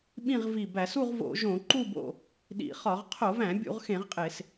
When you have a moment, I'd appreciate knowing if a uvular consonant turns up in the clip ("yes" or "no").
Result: yes